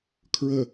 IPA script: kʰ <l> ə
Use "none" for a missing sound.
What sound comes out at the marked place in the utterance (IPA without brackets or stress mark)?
ɹ